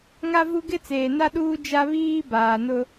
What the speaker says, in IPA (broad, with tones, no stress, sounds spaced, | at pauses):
ŋ a˦ v u˦ ɡ ɪ˦ t͡s eː˨ n a˦ ɗ uː˦ d͡ʒ a˦ β iː˦ b aː˨ n ʊ˦